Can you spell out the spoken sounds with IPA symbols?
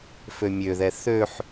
f ø mʲ ø ð ɛ θ ø ħ

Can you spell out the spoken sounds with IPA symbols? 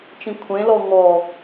t͡ʃ ĩ kʷʰ ẽ l ɔ ŋ ɔ

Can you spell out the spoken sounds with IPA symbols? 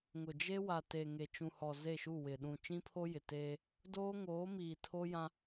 ŋ ʊ˨ d͡ʒ e˦ w a˨ t e˨ ŋ e˨ t͡ʃ ũ˨ h ɔ˨ z e˦˨ ʃ u˦˨ w ɪ˨ ɗ ũ˨ t͡ʃ ĩ˦ pʰ o˦ j ɪ˨ t eː˦ | d oː˦ ŋ oː˨˦ m iː˨ tʰ o˦ j ã˦

